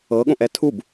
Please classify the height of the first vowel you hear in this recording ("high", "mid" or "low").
mid